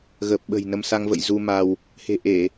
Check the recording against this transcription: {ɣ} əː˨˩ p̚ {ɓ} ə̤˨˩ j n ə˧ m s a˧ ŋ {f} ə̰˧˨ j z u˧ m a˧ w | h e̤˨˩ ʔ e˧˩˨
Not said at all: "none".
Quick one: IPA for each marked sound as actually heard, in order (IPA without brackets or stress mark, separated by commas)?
ɣ, ɓ, v